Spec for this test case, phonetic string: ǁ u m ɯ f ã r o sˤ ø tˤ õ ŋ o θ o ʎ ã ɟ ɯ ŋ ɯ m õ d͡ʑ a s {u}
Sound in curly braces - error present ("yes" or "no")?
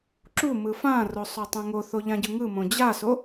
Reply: yes